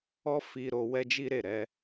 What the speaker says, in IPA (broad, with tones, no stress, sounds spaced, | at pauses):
ɔ˦ f i˧ ɾ o˧ w ɛ˦ d͡ʒ i˦ ɾ e˦˨ ɾ ɛ˧